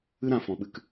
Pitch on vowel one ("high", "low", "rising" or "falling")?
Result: high